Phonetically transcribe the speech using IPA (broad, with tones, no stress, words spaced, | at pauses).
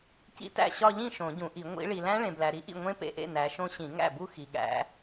cḭ˦˥tæ̰˥˩ɕɒ˥˧ ʎĩ˥˩ ʃõ˨˩˦ɟũ˨˩˦ʔi˨˩˦ ŋʷḭ˨˦ ɭi˨læ̃˦˥ɭẽ˨blæ˨ ɾi˨˦ʔḭ˥˩ ŋʷẽ˦˥pḛ˨˩˦ʔḛ˥˩ næ˨˦ʃõ˦˥ ɕĩ˨˩˦ ŋæ̰˥˩bu˥˧ xi˨ɠæ̰˨˦